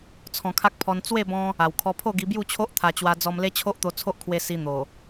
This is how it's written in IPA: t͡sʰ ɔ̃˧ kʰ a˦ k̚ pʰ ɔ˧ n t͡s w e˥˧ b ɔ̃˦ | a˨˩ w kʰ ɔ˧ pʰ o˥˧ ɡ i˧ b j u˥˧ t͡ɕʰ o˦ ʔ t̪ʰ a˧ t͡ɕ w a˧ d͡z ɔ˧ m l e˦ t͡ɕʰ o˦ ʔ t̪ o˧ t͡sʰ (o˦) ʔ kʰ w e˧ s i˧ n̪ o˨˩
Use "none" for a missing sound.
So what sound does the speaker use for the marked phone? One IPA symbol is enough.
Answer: o˦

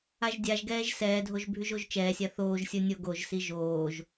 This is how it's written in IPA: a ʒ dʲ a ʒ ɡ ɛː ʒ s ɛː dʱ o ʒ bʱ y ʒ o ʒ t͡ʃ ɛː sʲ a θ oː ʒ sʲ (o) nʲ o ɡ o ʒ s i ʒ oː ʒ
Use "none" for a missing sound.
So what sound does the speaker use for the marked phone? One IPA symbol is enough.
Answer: o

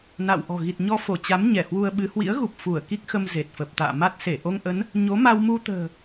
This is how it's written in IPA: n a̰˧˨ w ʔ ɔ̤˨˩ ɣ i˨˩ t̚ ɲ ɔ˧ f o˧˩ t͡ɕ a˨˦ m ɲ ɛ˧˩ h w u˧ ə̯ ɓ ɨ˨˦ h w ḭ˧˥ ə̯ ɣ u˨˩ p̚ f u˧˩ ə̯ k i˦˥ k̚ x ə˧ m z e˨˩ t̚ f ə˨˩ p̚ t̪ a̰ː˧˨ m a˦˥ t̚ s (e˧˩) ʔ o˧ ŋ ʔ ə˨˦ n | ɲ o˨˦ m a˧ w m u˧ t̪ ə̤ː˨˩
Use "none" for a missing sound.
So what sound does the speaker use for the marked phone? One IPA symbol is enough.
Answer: e˧˩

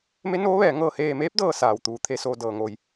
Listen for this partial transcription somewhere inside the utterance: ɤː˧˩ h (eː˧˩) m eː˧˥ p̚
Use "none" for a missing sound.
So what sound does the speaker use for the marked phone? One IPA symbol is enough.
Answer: eː˧˩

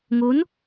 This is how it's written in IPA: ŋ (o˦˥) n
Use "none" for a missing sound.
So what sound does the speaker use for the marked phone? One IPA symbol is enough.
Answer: o˦˥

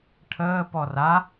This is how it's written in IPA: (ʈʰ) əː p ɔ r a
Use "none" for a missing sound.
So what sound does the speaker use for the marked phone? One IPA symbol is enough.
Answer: ʈʰ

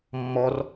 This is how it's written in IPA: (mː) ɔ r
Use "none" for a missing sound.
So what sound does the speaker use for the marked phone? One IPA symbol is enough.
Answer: mː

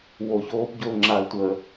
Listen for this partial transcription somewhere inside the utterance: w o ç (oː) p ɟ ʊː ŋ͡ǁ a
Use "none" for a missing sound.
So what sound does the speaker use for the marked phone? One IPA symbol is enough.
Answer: oː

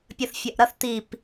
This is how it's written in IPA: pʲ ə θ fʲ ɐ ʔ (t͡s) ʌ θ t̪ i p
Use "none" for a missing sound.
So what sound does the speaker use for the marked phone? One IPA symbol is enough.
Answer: ɾ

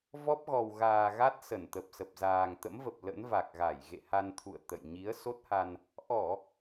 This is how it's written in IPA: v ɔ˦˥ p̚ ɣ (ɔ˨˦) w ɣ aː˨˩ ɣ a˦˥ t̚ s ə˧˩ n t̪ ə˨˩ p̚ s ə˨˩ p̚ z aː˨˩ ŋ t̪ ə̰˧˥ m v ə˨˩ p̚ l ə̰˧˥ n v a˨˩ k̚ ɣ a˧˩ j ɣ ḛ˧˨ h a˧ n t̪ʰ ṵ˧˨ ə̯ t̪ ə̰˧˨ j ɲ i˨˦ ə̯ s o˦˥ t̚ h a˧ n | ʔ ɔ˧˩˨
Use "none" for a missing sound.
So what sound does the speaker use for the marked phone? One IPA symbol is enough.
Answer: ɔ˨˩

